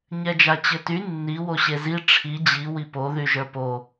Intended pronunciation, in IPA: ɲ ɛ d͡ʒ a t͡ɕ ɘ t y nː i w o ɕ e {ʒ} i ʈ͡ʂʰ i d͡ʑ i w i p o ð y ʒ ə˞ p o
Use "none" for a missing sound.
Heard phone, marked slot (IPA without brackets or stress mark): z